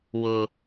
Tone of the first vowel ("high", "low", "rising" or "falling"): low